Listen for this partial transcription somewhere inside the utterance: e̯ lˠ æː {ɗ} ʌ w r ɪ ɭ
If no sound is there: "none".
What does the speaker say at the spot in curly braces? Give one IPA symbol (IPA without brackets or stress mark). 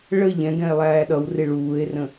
ɗ